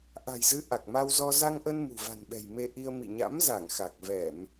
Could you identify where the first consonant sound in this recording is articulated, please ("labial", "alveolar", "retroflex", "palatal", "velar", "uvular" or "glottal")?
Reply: glottal